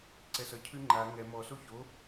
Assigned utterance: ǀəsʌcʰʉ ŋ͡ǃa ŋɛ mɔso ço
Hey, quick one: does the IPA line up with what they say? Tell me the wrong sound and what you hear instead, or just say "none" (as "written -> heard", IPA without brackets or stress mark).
ə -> ɛ